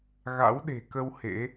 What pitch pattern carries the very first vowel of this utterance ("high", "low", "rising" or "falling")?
rising